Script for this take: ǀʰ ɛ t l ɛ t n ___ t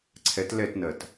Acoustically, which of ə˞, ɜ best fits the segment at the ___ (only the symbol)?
ɜ